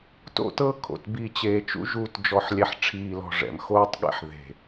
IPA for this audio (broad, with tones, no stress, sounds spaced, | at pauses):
t o̰˦˨ t ɤ˦ kʰ o̰˨ t b i˨ t͡ɕ eː˨ t͡ʃ ṵ˦ ʒ uː˦ t d͡ʒ ɔ˦ ħ lʲ ɛ˦ ħ ʈ͡ʂʰ iː˨ l ɔ̤˨ ʐ ɛ̰˨ m x oː˦ tˤ ɠ ɛ̰˦ ħ ð e̤˨